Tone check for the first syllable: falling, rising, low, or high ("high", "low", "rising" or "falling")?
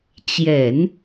low